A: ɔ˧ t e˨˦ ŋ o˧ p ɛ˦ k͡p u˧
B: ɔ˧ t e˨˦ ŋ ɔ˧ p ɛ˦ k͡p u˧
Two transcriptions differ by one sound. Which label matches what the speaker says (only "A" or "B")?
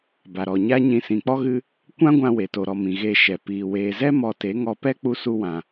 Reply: B